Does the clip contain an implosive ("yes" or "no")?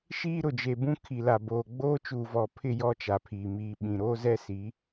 yes